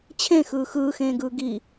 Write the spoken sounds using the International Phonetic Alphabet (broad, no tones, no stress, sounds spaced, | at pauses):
t͡ɕʰ ẽ x ɯː x ɯː x ẽː ɡ ɯː ɡ i